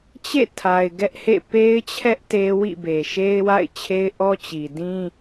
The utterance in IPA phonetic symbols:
t͡ɕḛ˦˨tʰa˨ɪ̯ ɡɛ˦ʔhḛ˦˨ pe˦ɪ̯t͡ɕʰɛ˦ʔ te˦ wḭ˦˨be˨ʃe˦ɪ̯ wa̰˦˨ɪ̯t͡ɕʰe˦ɪ̯ʔɔ˦ t͡ɕi˨dĩ˦

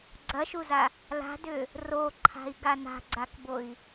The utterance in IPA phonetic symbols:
ɡ͡ǀɐʃuza | la̤dʏ | roǃʰa̤i̯ɡa na̤ɡ͡ǀakboi̯

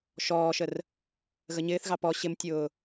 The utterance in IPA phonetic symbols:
ʃɔːʃər | ɣəɲɪːθɣɑ pɔ ɕɪmtʲʊː

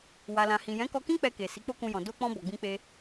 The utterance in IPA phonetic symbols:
wa˨lã˨hĩ˨ jɛ̃˨˦kɔ˧kĩ˦ k͡pɛ˧ke˨ si˨˦k͡po˦kũ˧jɔ̃˨ do˧k͡pɔ̃˧ bɔ˨ɡ͡bĩ˧k͡pe˧

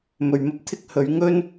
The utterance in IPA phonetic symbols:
mɵ˨ɥ mɐ˥p̚t̪ʰɪ˥k̚ hɵ˨˧ɥŋɵ˥n

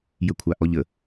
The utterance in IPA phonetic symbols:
jəkʷʰaʔɔʎə

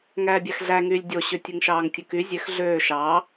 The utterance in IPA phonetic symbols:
ŋæːbʲæxɮæŋyːlʲ dʲoɕø tʲɯŋʃɑːŋtʲɯky zʲøx ɮøː ʃɑː

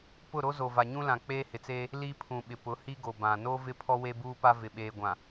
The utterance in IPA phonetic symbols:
pʊ˦˨ɾo˦ zo˨va˨ɲũ˦ lã˨k͡peː˦hɪ˨t͡seː˦ | li˦pʰũ˨ɓɪ˨ pʊ˨˦hi˦ɡo˨bã˨ no˦vɪ˦ pʰɔ˦we˦buː˦pa˦ vɪ˨ɓeː˨ɡʷã˨

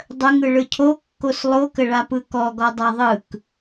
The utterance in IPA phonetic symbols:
dˤəŋɯ ɭɯcʰokːos lˠokəɭapɯ kɔɡɔ dˤaðˤɯk

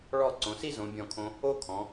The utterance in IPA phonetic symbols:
ɭɔ˥˧ ǀõ˩˧si˥zõ˩˧ bʲɔ̃˧˩kʰõ˧ | o˥kʰɔ̃˩˧

